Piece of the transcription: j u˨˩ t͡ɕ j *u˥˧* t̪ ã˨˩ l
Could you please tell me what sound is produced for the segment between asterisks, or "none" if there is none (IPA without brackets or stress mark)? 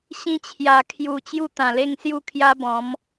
u˥˧